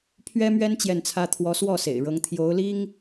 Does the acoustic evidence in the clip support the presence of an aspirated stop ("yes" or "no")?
yes